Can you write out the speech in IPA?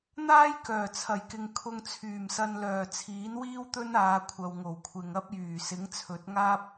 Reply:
n̪ aː˥ j k œː˨˩ t͡sʰ ɐ˨˩ j k ɪ˨ ŋ kʰ ʊ˧ ŋ t͡sʰ yː˨˩ m s ɐ˧ n l œː˨˩ t͡sʰ iː˨˥ n w iː˥ w t̪ ɵ˥ n aː˨˧ kʷʰ ɐ˨ w ŋ o˨˩ w kʷʰ ɪ˨ ŋ ɐ˥ p̚ j yː˨˩ s ɪ˨˥ ŋ t͡sʰ ɵ˨˥ t̚ ŋ aː˥ p̚

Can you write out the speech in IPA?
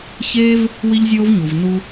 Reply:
ç eː˦ v | w i˦ ʎ zʲ oː˦ v ɲ u˩ v n u˥

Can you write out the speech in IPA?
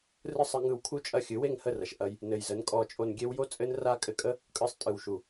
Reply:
r ɯ˦ sˤ ɨ˧ ŋ ɯ˧ w kʰ u˦ t͡ʃʼ ɐ˦˨ xʲ ɨ˨˦ w e˦˨ ŋ h ə˦˨ r ɐ˨ ʃ ʔ ɐ˦ j | n ɘ˨ j z ə˨˦ n kʼ ɔ˧ t͡ʃʼ o˧ n ɡʲ e˦ w j o˦ t͡sʼ ɘ˦ n r a˦ kʼ ɘ˧ kʼ ə˦ | kʼ ɯ˧ sˤ tʼ ɯ˨ w ʃ u˨

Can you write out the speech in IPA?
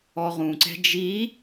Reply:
ɔ ʁ ũ ǀ ɛ̤ d͡ʒ i

